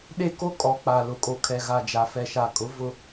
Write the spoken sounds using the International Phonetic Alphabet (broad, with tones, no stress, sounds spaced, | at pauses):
ɗ e˦ k o˦ kʼ ɔ˨˦ k͡p a˨ l ʊ˨ kʼ o˨ kʰ ɛ˨ ɣ a˨ d͡ʒ a˨ f ɛ˨ ʃ a˨ kʼ ʊ˨˦ v ʊ˦